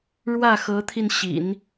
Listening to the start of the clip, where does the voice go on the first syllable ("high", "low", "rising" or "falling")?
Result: falling